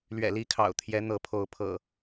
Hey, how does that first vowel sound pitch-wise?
low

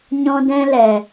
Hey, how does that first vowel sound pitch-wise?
high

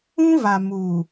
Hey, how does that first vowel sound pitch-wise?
high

